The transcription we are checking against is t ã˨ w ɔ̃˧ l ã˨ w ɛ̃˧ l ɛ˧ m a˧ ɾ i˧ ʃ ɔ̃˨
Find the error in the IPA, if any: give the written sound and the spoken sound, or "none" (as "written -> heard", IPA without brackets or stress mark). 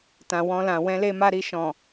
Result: ɛ˧ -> e˧